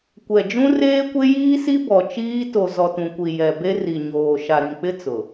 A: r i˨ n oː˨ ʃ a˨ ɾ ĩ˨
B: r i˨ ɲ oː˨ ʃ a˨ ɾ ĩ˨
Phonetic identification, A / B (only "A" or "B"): B